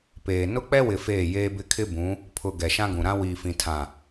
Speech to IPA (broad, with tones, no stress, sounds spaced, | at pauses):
p eː˨ n ʊ˦ k͡p ɛ˦ w ɪ˨ f eː˦˨ j eː˦ b ɪ˦ kʰ ɪ˦ b ũ˨˦ | pʰ ʊ˨ ɡ ɛ˨ ʃ ã˦ ɡ ũ˨ ɾ ã˦ w iː˨ f ĩ˨ tʰ ã˨